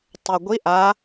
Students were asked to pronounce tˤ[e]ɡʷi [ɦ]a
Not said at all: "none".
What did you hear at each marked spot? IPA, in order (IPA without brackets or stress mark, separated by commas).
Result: e, ʔ